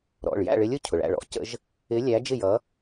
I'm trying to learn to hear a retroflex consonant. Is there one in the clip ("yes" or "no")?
yes